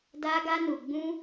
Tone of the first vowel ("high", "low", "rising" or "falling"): high